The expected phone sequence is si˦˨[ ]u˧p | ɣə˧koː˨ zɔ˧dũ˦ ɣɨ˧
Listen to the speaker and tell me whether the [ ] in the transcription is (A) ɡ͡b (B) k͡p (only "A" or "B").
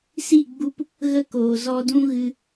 A